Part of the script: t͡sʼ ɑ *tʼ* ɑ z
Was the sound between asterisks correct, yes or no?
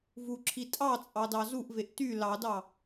no